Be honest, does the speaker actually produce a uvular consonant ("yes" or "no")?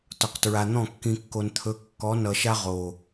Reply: yes